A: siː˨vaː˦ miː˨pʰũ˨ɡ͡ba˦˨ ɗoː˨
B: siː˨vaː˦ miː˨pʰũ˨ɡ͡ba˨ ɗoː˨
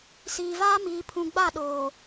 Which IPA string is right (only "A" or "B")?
A